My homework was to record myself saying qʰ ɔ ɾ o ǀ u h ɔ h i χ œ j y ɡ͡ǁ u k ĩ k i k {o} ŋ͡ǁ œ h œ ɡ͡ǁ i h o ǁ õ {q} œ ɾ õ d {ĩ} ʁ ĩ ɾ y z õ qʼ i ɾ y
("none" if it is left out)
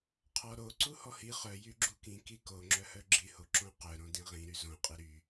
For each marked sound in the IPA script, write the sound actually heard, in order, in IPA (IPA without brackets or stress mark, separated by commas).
o, q, ĩ